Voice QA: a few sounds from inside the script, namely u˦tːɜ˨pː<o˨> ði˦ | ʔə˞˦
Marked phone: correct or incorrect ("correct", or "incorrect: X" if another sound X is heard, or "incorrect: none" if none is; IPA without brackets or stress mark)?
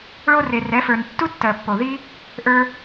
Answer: correct